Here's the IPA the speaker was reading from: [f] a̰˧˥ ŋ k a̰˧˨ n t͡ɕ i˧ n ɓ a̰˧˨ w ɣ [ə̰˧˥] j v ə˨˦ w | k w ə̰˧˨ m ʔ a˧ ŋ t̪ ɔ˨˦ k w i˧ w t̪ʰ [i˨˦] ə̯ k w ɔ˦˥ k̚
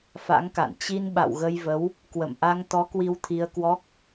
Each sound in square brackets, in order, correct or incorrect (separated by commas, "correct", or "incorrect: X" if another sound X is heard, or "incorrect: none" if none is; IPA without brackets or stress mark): correct, incorrect: ə˧, incorrect: i˧